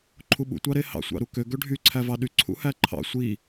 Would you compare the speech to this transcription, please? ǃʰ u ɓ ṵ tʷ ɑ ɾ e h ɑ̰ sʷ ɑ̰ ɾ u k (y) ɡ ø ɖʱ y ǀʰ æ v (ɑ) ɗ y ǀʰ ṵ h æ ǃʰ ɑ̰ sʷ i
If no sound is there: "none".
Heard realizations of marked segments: ø, ɑ

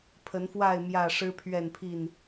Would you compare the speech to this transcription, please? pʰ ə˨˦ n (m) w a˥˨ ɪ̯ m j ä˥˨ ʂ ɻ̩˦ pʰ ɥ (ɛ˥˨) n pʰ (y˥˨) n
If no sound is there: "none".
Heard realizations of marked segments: f, ɛ˥˨, i˥˨

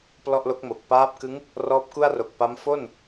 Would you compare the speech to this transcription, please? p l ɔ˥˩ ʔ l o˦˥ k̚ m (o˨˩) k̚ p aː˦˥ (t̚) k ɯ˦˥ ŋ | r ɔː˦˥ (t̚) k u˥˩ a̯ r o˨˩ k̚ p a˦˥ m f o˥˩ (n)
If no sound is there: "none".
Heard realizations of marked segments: o˨˩, p̚, p̚, n

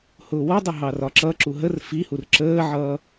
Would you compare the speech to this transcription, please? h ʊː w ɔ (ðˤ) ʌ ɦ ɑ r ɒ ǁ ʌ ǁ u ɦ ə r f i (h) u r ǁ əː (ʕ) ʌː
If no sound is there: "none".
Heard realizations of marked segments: dˤ, h, ʕ

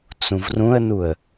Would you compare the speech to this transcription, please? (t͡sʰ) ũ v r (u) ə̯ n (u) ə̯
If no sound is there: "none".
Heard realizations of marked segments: t͡s, ũ, u

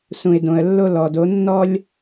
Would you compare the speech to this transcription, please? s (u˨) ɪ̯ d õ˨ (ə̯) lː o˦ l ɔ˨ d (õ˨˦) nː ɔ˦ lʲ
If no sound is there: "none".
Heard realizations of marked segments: ũ˨, ə̯, o˨˦

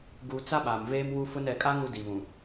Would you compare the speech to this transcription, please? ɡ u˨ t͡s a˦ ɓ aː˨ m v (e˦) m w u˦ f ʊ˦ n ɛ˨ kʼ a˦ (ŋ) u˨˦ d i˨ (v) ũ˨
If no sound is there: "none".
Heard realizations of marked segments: eː˦, ŋ, β

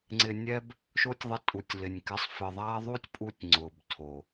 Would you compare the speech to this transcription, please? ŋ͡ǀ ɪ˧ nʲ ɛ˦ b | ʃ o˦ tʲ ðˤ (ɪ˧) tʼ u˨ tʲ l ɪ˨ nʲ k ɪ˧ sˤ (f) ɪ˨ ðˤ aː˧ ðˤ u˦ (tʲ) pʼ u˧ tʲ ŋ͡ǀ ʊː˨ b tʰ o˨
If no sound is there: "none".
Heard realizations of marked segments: ɪ˧, f, tʲ

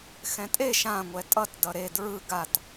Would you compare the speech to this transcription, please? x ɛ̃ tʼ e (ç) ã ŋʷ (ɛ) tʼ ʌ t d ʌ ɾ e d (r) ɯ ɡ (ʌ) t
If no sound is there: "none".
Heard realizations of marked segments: ʃ, ɛ, ɹ, a

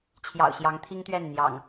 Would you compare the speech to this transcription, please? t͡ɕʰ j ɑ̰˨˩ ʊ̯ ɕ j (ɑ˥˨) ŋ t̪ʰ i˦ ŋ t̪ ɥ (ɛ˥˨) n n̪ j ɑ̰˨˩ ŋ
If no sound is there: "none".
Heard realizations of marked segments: ɑ˨˦, ɛ˥˨

